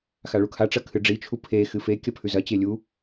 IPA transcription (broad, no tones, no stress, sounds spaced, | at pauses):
x a ɭ u kʰ a ʈ͡ʂ ɐ kʰ ɨ ɖ͡ʐ i t͡ʃʰ u pʰ e x ɨ f e kʲ ɐ pʰ ʉ z ɐ t͡ɕ e lʲ u